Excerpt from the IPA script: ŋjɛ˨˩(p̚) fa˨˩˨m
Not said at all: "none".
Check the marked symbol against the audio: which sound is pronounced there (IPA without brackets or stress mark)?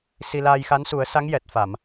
t̚